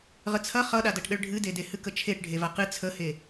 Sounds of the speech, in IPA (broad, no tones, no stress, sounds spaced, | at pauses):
ʁ ə t͡sʰ ɐ χ ʌ ɗ a d ɐ ʈ ɗ ə ɭ ɖʱ ɨ d e d e h ɨ k ə t͡ʃʰ e ʈ ɖʱ e v a q ɨ t͡sʰ ə h e